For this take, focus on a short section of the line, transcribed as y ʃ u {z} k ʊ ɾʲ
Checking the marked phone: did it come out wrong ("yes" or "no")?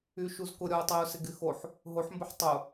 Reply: no